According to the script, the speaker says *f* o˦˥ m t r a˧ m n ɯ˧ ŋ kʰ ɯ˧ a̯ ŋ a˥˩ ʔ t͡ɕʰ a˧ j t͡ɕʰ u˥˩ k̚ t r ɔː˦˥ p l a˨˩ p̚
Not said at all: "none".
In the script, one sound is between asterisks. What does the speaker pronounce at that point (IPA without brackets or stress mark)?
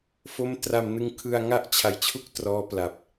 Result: f